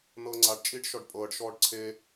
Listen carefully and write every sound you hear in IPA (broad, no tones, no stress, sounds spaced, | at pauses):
n ɤː ŋ͡ǀ a ɖ t͡ʃʼ iː ɖ ʃ ɔ ɖ pʼ ɤː ɖ ʃ ɔː ɖ ǀʰ e